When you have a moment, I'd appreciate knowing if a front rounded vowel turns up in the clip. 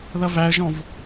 no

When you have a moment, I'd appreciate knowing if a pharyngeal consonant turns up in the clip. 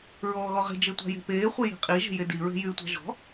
no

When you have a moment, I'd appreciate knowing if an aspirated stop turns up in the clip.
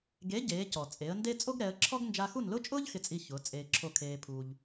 yes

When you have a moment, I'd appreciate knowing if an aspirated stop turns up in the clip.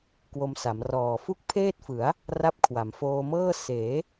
yes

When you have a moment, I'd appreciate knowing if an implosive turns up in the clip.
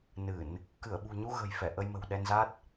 yes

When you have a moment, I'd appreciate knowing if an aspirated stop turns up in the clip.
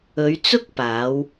no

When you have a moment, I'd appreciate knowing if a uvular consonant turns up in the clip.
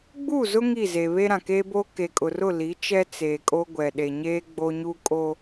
no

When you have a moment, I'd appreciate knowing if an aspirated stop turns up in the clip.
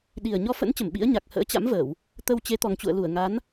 no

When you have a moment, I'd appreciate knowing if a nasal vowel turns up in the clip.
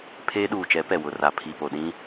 yes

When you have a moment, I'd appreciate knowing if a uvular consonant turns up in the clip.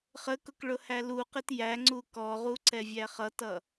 yes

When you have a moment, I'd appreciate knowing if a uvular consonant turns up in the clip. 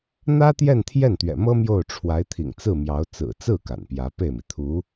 no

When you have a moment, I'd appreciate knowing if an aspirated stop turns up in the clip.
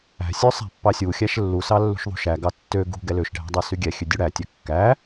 no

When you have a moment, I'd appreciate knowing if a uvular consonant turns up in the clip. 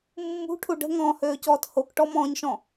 no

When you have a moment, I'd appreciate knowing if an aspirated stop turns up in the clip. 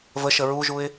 no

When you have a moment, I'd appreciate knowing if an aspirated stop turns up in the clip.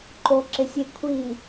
yes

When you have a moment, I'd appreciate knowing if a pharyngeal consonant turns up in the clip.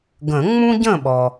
no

